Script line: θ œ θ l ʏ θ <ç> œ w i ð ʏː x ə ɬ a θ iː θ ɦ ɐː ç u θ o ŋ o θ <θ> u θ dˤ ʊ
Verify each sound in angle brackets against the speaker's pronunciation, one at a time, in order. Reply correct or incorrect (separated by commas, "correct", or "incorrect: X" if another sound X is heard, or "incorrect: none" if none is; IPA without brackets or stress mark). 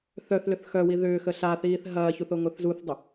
incorrect: x, incorrect: z